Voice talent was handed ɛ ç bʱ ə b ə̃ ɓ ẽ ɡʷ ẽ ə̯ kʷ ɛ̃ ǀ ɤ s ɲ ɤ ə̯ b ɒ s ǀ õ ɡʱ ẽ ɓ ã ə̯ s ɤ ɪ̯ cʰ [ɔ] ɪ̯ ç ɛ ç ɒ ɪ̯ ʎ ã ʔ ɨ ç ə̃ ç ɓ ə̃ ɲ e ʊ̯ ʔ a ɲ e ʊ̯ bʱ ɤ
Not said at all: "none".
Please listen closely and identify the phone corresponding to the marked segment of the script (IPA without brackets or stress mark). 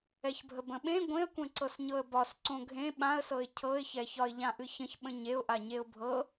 ɤ